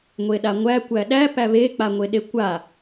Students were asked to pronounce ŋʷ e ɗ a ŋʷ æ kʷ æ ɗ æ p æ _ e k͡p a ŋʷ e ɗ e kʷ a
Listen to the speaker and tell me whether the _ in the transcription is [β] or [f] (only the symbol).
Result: β